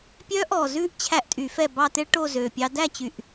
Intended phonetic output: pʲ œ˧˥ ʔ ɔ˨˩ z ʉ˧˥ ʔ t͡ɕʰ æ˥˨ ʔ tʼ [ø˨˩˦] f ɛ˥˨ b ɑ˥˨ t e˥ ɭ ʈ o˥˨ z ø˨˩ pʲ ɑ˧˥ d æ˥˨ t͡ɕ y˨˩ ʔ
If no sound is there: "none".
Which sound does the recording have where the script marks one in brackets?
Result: y˨˩˦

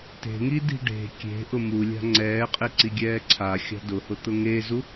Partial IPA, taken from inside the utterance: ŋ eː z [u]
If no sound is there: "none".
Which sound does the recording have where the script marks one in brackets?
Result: u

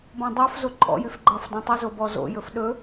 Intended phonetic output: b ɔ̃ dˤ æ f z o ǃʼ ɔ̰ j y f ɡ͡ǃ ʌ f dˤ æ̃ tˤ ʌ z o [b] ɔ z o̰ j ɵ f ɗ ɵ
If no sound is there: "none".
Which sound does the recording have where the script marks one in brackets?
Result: b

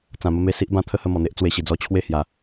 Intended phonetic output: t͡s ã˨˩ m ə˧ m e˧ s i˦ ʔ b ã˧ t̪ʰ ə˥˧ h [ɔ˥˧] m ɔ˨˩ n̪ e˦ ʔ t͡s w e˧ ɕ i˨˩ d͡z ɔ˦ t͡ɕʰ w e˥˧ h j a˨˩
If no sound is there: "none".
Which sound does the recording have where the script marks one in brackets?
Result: ə˥˧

